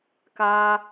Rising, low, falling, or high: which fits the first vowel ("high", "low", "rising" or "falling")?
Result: high